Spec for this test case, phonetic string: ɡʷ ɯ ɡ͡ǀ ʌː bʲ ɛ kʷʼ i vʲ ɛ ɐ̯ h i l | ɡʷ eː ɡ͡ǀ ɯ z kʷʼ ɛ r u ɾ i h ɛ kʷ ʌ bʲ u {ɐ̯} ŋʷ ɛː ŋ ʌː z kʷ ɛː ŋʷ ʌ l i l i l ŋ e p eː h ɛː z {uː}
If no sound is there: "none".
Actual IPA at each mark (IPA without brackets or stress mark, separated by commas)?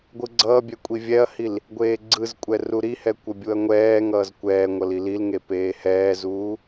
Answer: ɐ̯, uː